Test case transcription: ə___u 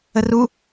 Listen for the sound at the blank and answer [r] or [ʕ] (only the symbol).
r